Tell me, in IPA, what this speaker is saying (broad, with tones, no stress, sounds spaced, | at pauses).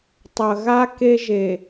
tˤ ɐ˨ ɣ a˦ k e˦ ʒ e˨